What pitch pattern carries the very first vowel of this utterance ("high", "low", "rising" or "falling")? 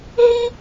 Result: high